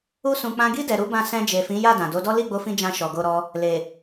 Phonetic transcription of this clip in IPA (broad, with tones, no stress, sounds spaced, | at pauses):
u˦ s ũ˧ k͡p ã˧ ɡ i˦ d ɛ˧ ɾ u˦ b ã˦˨ s ɛ̃˧ d͡ʒ e˨ f ĩ˨˦ j a˦˨ d ã˨ d o˨˦ d ɔ˦ l i˦˨ ɡ͡b o˧ f ĩ˧ d͡ʒ ã˧ ʃ ɔ˨ ɡ o˧ ɾ ɔ˧ | l e˨